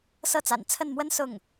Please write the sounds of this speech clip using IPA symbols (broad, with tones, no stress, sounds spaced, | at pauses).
s ɤ˥˩ t͡s a̰˨˩ n t͡sʰ ə˥˩ n m w ə˥ n s ʊ˥˩ ŋ